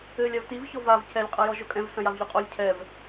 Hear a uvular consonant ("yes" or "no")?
yes